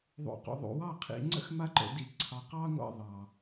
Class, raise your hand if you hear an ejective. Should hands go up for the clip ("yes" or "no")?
no